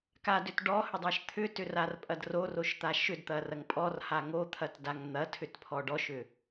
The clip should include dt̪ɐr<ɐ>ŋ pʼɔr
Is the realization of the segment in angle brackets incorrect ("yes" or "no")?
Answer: no